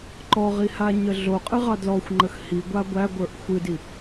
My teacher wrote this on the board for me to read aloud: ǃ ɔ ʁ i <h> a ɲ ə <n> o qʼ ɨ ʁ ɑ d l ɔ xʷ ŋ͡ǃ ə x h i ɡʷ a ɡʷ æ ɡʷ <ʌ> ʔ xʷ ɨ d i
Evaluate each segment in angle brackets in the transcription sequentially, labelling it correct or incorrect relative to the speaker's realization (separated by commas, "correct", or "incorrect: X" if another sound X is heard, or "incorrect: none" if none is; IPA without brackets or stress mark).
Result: correct, incorrect: ɮ, incorrect: ə˞